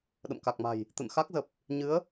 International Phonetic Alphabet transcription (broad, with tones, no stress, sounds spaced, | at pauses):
ɗ ə̰˧˨ m k a˨˩ k̚ m a̤˨˩ j | t̪ ə̰˧˨ n x a˦˥ k̚ z ə˨˩ p̚ | ɲ ɨ˨˦ ə̯